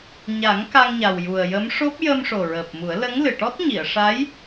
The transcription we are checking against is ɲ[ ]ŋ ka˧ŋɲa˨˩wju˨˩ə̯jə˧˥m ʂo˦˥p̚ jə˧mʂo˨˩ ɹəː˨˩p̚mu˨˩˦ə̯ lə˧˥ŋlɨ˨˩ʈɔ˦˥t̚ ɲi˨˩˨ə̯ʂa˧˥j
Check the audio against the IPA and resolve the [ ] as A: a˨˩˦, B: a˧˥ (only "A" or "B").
A